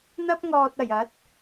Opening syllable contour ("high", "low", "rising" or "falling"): high